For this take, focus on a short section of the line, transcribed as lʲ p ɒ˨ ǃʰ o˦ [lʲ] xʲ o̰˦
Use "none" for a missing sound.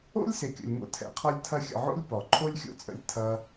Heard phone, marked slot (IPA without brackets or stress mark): lʲ